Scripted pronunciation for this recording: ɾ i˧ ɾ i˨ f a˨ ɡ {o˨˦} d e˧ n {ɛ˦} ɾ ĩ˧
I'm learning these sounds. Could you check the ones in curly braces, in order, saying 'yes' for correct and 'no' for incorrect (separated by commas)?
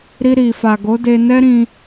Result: yes, yes